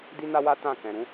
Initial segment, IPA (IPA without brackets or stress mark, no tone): d